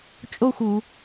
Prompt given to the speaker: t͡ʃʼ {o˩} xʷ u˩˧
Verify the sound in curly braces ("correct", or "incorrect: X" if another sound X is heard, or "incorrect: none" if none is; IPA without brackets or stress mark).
incorrect: o˥˧